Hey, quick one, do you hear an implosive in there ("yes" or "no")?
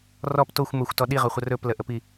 yes